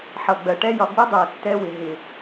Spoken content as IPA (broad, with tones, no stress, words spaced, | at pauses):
ħʌ˨ɡ͡bɜ˨ʈɛ˦jɒ˧ ɡ͡bɪ˦dˤæ˨tːɛ˧ wɪ˨ ɦɪ˨